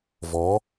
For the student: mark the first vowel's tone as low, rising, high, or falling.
rising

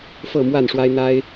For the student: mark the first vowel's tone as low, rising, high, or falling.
falling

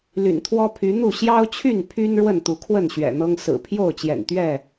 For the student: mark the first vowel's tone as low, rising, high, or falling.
low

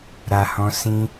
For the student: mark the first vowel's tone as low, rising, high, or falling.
low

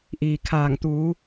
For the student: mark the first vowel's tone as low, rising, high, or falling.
low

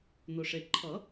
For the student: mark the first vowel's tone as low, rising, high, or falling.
low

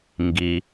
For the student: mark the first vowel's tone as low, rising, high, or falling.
low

